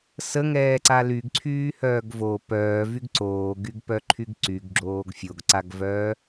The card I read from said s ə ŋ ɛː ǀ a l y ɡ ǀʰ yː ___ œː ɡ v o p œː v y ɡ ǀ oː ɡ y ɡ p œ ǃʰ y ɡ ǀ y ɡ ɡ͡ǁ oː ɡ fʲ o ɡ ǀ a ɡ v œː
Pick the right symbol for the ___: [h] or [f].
h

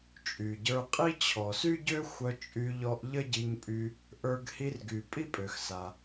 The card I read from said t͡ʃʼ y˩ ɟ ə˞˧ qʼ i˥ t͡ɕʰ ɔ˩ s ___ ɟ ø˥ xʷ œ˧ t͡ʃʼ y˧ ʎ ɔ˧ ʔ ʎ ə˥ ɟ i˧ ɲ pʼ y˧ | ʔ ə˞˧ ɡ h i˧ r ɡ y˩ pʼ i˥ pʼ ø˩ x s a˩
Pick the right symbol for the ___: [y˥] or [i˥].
y˥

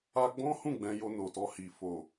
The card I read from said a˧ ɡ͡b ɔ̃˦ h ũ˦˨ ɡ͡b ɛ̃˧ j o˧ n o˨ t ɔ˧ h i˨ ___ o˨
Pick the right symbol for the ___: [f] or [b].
f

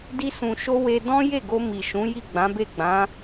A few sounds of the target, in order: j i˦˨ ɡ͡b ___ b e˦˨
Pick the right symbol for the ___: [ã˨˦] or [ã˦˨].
ã˨˦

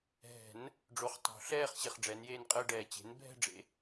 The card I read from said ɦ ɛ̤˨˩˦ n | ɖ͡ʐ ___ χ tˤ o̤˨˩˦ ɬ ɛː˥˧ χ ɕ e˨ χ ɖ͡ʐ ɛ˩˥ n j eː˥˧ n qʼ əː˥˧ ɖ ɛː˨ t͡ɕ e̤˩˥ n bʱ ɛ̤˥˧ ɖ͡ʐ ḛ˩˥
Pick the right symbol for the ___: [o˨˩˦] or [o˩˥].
o˩˥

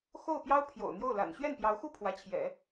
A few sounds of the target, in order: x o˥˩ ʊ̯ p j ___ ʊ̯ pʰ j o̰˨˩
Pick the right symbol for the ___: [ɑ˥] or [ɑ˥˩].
ɑ˥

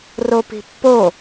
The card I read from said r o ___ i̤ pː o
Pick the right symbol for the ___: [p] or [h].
p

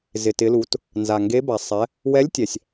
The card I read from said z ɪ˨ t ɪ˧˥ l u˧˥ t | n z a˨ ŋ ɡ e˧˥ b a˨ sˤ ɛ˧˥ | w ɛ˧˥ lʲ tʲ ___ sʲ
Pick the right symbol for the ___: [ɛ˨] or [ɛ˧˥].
ɛ˨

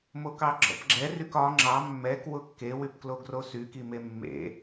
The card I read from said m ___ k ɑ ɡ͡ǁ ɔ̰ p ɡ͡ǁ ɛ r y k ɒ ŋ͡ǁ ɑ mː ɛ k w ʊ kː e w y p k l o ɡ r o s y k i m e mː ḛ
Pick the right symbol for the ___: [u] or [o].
o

